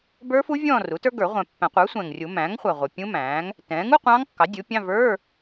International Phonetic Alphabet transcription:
bə˞˦˥fu˦˥ vʲɔ̃ː˥˧ru˩˥tə˞˦˥ɡə˞˨˩˦ ʁʷɛ̃˨˩ pːæ̃˨˩˦qʷə˞˩˥ sʷɛ̃˨˩ŋrʲu˨˩˦ mæ̃ː˩˥ŋχʷæ˨˩ ʁʷʌ˨˩ pʲũ˦˥mæ̃ː˩˥ŋ | tɛ̃ː˩˥ŋu˧˥˧qʷɑ̃˦˥ŋ kːɑ˩˥dʲu˩˥pʲɑ̃˧˥˧ və˞˧˥˧

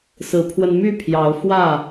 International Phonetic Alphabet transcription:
sɹ̩˨˦pʰwə˧n my˥˨pʰjɑ˨˦ʊ̯ fwä˥˨

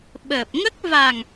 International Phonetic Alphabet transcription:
ɓəː˨˩p̚ŋə˦˥k̚ va˨˩ŋ

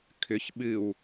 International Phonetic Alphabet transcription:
kʰʏç ɓɨw

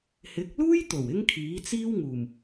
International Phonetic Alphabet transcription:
hɪ˨˥k̚luː˥jt̪o˨˩w ɪ˥ŋkʰiː˨˥t͡siː˥wŋuː˨˩m

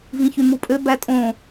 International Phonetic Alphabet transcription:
vĩçymupʼø bætʼõ

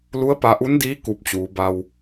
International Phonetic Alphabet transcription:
lu˧˥ə̯pa˧ʔu˧˥ndiː˧˥ ku˧p̚t͡ɕuː˩˧ ba˧w

